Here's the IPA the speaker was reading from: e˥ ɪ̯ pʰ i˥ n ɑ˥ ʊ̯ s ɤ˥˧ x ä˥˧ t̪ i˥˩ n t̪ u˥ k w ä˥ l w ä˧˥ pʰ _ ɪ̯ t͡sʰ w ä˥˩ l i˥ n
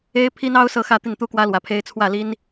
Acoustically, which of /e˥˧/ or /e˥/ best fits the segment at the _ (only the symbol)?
e˥